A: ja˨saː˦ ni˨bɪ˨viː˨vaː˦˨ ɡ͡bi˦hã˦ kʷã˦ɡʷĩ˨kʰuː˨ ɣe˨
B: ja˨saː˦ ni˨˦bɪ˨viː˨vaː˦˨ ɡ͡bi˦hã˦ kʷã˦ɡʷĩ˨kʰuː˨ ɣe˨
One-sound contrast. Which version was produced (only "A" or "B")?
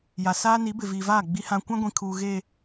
B